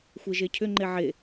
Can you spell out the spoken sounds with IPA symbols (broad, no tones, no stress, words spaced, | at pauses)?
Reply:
xʷeʒecʰʏ ŋ͡ǃeʕe